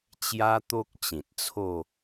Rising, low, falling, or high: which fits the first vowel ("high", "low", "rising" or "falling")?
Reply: high